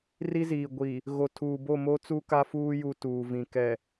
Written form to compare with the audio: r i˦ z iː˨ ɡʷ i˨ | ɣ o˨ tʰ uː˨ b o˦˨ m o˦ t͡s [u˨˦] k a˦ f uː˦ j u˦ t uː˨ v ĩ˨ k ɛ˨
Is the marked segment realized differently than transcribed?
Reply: yes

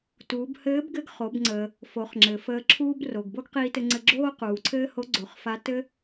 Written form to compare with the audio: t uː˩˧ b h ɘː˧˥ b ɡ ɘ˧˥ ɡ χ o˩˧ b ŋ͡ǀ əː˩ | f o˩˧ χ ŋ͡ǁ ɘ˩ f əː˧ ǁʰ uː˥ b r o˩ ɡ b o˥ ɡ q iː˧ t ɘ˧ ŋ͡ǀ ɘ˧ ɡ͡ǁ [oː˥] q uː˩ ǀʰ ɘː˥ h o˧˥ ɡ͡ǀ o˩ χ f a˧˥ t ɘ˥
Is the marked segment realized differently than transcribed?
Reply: no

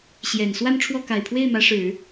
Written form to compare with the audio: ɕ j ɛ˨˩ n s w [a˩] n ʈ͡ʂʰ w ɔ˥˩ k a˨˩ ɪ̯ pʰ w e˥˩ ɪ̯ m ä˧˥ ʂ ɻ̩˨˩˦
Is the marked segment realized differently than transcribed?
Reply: yes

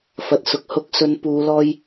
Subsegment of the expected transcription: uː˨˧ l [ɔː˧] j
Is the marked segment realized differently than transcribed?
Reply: no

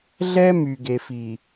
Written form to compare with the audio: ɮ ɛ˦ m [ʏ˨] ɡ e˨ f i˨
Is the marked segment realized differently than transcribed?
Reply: yes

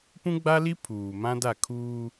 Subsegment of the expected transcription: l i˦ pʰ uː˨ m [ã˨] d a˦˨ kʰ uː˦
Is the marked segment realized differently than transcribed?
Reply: yes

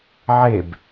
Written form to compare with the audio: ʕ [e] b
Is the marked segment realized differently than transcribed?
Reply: no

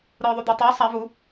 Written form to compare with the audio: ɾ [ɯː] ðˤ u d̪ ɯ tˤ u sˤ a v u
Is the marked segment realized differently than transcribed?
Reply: no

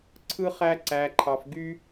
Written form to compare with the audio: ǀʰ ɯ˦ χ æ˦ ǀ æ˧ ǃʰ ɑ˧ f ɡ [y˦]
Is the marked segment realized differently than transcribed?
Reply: no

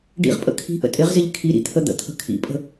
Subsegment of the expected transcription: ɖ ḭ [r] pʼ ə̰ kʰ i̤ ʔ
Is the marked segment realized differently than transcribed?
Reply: yes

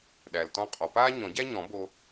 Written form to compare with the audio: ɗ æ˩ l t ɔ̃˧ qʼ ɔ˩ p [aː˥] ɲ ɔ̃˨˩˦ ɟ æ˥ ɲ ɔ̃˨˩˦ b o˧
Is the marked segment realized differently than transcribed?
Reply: no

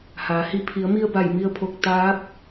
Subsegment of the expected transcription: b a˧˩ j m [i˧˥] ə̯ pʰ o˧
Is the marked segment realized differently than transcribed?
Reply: yes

